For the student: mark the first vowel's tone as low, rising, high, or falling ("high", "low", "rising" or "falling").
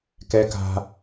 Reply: high